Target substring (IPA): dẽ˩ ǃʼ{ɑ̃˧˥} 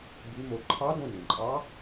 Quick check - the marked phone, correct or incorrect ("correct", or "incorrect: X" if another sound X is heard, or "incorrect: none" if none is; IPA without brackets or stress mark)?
incorrect: ɑ˧˥